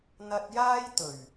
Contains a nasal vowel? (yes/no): no